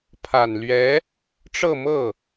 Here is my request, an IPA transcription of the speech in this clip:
pʰ a˨˩ n l ɥ ɛ˧˥ | ʈ͡ʂ ɤ˥˧ m ɤ˥˩

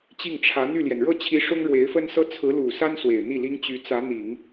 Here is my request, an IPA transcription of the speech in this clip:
t͡ɕ i˥˩ ŋ ʈ͡ʂʰ ä˧˥ n̪ y˥˩ l j ɛ˩ n ɻ ɤ˥˩ t͡ɕʰ i˧˥ ʂ ʊ˥ ŋ ɻ w e˧˥ ɪ̯ f ə˥ n s ɤ˥ t͡sʰ ɹ̩˧˥ l u˨˩ s a˥ n s w e˨˩ ɪ̯ n̪ i˥˩ l i˥ ŋ t͡ɕ y˧˥ t͡s ä˧˥ n̪ i˨˩˦ ŋ

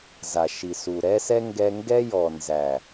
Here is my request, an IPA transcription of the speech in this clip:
z a˨ ʃ i˨ s u˨ ɾ ɛ˦ s ɛ˦ ŋ ɡ ɛ˧ ŋ ɡ ɛ˦ j ɔ˨ n z æ˨

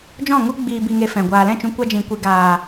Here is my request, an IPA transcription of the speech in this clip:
d͡ʒ ɔ̃˦˨ ŋ u˦ ɡ͡b iː˧ b i˧ ŋ e˧ f ɛ̃˨ ɡʷ aː˨ l ɛ̃˦˨ t͡ʃ ũ˧ kʷ a˦ d͡ʒ ĩ˧ kʷ i˧ ɡ aː˨

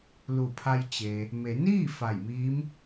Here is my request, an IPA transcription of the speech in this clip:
l u˧˩ pʰ a˧ j t͡ɕ e˩ | m e˩˧ n iː˥˨ f a˧˩ j m iː˧˥ m

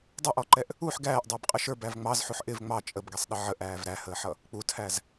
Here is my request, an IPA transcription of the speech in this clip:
dˤ ʊ ʔ ɔ ǃ ɛ ʔ | u ħ ɡ æː ʔ dˤ ɪː b qʼ ə ʃ ə˞ b æ v ŋ͡m ɑ z ħ u ħ ʔ ɪ v ŋ͡m ɑ t͡ʃʼ ə b ɡ ɛ sˤ ɗ ə ʕ ə ʔ æː v ɾ æ h əː ħ ʌ | k͡p u tʰ æ z

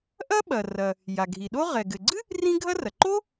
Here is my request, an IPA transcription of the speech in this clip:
ʔ ɐ˥ ɓ ɐ˩ r ɐ˩ | j a˩ ɡʱ i˩ ɗ o˥ ʁ ɛ˩ ɡ ɘ˩ ɡ͡ǀ ɨ˥ | r ĩ˥ ɡʱ ɐ˥ r ɐ˩ ǃ o˥

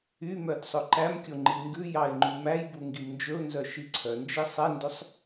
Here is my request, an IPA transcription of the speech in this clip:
y m œ d sˤ ɵ ǃ æ m kʲ o ŋ͡ǃ i ŋ ɡ ʉ j ɑ ɪ̯ ŋ͡ǃ ʉ m æ j b u ŋ ɡ i m n d͡ʒ ɵ ʊ̯ n z œ ʃ i ǀʰ œ n d͡ʒ i sˤ ɛ n d ø sˤ

